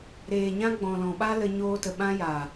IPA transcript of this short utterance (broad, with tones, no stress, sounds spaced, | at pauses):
ɾ eː˨ ɲ ã˦ ɡ͡b ɔ̃˨ l ɔ̃˨ ɓ a˦ l ə˧ ɲ oː˧ t ə˨ ɓ ã˦ j aː˨